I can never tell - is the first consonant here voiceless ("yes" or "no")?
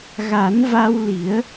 no